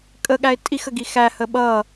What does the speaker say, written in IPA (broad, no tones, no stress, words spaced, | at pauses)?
kʼəɠæɪ̯ tʼixəɡi xæhə ɓʌ